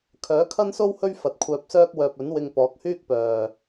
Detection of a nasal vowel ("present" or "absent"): absent